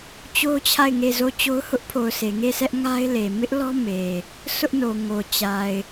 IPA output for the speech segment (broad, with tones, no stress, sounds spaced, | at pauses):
t͡ɕ o˦ t͡ɕʰ a˦˨ ɪ̯ ŋ e˦˨ z o˦˨ t͡ɕ o˦ ʊ̯ h ʊ˦ ʔ pʰ o˨ ʊ̯ s e˨ ŋ e˦˨ s ɛ˦ ʔ ŋ a˦ ɪ̯ l e˨ m ɪ˦ ʔ l ɔ˦ m e˨ | s ʊ˦ ʔ n o˨ ŋ o˨ t͡ɕ a˨ ɪ̯